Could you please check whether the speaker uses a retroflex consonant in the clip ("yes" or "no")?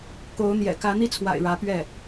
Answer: yes